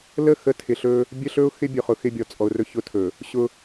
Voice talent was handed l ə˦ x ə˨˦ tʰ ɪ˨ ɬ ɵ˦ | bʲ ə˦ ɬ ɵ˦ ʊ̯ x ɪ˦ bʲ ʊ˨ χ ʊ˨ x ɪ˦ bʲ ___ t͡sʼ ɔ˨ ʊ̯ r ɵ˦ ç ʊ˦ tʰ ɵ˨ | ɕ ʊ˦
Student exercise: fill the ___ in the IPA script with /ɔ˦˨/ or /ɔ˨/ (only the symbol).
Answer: ɔ˨